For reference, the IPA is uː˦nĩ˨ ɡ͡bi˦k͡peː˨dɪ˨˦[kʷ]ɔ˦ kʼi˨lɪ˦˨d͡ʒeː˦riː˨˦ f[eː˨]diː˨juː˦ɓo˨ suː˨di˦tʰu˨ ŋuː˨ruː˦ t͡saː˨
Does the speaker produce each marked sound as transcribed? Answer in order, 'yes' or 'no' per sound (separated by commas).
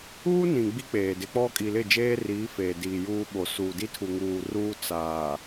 no, yes